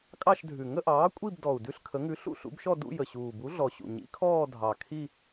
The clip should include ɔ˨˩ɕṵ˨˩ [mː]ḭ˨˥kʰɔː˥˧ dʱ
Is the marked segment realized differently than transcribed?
yes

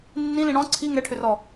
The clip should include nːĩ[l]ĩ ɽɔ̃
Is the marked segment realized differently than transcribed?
no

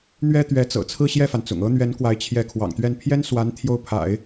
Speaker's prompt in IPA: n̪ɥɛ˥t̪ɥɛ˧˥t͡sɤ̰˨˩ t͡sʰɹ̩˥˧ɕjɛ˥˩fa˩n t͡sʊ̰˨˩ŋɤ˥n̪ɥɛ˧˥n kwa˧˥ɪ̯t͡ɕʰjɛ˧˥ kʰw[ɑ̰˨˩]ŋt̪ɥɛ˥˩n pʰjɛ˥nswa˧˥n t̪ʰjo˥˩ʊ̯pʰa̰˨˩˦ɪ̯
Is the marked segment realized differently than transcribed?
no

